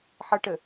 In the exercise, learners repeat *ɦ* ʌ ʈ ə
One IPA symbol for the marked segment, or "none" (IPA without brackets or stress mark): ħ